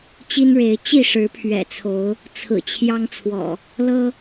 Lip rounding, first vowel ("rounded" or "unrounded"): unrounded